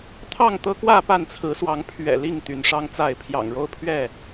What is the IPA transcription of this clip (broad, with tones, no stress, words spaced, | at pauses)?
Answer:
t̪ʰɑ˥˨ŋt̪ɤ˦kwä˥˨ pa˥˨nt͡sʰɹ̩˨˦swɑ˨˦ŋ pʰɥɛ̰˨˩li˥˨ŋ t̪y˨˦nʂɑ˦ŋt͡sa˥˨ɪ̯ pʰjɑ̰˨˩ŋɻo˥˨ʊ̯pʰɥɛ˥˨